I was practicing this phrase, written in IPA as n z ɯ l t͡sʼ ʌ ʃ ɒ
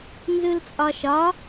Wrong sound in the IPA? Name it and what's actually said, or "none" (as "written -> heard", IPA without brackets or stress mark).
ʌ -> ɒ